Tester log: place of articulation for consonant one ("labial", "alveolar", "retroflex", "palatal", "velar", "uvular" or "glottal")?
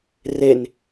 alveolar